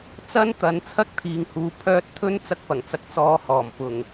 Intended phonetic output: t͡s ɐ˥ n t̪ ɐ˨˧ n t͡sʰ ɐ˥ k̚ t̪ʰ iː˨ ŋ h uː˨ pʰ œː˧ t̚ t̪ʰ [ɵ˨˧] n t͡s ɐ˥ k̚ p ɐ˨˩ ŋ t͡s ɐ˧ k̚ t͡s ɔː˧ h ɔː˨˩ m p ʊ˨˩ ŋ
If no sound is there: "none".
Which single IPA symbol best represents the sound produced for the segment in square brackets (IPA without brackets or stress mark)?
ɵ˥